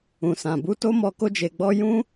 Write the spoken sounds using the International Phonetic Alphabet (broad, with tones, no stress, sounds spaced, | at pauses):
ũ˨ s ã˨ b u˧ t o˦ m ɔ˧ k o˧ d͡ʒ e˨ ɡ͡b ɔ˧ j ũ˦